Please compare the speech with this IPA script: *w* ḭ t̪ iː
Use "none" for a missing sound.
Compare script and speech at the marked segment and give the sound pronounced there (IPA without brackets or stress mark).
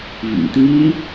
v